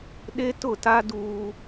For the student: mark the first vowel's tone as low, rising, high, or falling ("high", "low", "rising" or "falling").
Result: high